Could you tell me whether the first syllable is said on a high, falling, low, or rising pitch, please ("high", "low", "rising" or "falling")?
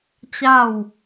falling